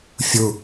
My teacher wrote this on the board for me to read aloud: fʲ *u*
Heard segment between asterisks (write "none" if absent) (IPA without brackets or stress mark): u